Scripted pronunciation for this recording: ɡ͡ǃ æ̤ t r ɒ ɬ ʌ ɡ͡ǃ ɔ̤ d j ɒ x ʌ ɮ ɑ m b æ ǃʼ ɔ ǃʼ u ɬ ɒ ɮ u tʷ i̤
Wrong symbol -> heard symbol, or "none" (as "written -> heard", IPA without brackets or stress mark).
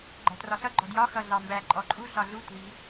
none